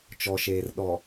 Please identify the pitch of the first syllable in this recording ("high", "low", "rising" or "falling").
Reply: low